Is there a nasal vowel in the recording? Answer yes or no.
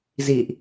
no